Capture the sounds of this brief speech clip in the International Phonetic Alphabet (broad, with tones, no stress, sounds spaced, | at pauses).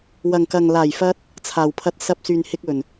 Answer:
w ɐ˨ ŋ k ɐ˨ ŋ l aː˨˩ j f ɐ˧ t̚ | t͡sʰ aː˨ w pʰ ɐ˧ t̚ s ɐ˧ p̚ s yː˨ n h ɪ˧ k̚ ɵ˨˩ n